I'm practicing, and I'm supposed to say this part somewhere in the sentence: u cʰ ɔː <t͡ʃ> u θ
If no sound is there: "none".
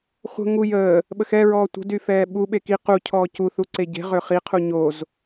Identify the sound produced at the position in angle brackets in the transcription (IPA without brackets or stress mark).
c